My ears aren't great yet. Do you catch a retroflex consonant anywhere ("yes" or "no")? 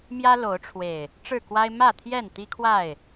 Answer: yes